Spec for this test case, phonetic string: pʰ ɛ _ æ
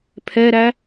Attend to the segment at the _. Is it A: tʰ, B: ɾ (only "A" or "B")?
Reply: B